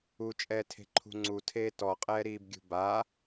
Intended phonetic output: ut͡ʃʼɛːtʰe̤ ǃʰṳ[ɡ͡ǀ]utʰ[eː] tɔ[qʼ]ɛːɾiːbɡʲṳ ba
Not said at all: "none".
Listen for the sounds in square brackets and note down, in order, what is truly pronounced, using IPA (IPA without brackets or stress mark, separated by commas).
ŋ͡ǀ, eː, qʼ